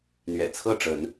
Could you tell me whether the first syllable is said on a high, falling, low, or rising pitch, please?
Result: low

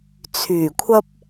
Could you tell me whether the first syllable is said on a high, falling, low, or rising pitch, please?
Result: low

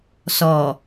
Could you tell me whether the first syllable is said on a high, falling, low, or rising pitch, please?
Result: low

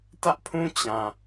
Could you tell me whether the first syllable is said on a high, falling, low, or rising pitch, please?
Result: high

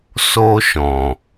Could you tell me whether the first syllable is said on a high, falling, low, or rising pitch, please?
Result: high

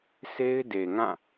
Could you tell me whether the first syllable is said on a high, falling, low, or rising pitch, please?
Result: high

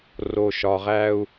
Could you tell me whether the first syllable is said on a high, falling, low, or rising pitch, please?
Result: low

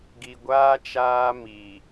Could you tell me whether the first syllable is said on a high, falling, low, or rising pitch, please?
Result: low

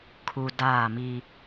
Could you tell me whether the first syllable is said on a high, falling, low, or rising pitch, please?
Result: low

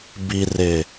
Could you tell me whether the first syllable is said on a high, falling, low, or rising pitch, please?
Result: low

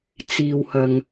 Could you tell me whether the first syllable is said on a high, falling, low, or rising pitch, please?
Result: low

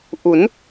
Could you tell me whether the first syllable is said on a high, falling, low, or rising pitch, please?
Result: rising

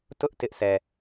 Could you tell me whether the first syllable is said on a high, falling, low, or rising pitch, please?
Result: high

